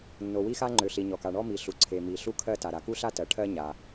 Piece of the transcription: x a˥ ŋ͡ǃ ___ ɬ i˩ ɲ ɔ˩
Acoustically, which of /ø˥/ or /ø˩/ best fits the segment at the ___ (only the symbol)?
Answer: ø˩